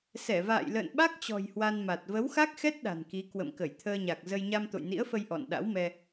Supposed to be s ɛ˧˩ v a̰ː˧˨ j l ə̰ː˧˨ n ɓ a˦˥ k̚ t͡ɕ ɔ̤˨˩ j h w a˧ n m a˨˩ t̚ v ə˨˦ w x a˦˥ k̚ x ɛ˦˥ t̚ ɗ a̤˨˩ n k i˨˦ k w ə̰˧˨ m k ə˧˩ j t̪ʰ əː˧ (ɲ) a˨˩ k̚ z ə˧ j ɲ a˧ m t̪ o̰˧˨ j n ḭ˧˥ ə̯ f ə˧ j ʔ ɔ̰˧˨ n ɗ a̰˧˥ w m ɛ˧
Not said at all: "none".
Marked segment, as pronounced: ɲ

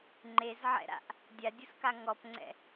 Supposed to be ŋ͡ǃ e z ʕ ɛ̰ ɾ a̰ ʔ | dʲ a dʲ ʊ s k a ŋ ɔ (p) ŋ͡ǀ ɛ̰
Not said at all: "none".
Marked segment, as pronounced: p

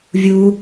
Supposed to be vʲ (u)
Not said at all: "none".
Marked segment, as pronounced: u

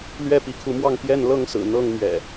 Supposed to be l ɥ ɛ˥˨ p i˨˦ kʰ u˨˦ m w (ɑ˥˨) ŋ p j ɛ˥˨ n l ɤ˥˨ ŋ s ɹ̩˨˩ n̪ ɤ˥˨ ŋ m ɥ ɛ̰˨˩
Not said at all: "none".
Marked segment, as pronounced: ɑ˥˨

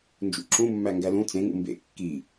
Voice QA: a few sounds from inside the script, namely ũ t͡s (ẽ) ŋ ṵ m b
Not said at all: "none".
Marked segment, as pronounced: ẽ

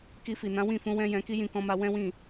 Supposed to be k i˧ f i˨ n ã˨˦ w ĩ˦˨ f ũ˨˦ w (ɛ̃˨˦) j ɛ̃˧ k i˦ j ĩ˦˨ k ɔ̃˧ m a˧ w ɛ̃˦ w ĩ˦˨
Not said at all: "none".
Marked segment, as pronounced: ɛ̃˦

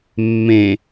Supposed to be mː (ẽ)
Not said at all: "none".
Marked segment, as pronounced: ẽ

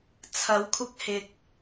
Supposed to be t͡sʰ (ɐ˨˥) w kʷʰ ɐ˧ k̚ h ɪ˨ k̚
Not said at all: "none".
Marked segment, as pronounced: ɐ˨˥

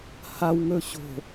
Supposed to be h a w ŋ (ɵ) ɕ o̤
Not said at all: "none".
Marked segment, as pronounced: ɵ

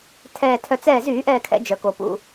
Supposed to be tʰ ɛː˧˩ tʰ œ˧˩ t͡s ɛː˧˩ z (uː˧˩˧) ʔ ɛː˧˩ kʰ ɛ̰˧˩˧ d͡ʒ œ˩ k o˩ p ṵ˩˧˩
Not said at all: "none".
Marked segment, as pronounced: yː˧˩˧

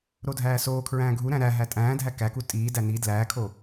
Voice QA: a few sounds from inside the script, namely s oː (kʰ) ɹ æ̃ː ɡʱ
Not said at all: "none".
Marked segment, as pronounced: kʰ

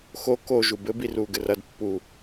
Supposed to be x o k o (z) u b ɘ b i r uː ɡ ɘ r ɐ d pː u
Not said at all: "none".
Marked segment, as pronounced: ʒ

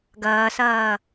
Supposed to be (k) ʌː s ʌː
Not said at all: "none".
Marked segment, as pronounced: ɡ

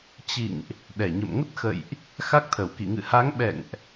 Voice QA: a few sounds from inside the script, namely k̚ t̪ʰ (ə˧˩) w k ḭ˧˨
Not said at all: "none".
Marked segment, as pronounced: ə˧˩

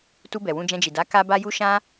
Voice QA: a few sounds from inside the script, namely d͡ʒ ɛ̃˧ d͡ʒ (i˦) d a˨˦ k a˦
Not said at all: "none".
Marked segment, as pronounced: i˨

